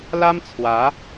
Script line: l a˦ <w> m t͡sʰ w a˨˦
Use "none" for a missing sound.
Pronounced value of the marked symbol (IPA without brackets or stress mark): none